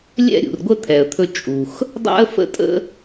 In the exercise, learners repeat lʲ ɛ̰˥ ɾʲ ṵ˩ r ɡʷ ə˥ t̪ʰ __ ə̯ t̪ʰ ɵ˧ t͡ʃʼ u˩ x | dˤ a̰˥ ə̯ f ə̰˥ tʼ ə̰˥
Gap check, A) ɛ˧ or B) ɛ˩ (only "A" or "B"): B